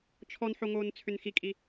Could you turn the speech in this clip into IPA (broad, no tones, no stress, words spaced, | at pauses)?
t͡ʃʰɔnħoŋoːn t͡sʰʏnxikʼi